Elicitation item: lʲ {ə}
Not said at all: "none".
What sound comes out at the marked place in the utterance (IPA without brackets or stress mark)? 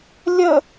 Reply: ə